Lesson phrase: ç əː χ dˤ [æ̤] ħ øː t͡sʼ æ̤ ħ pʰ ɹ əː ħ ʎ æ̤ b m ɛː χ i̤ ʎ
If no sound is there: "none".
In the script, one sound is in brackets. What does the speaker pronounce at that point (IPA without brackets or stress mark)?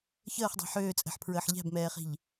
æ̤